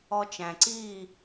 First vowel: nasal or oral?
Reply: oral